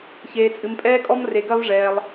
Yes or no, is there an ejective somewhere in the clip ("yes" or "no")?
yes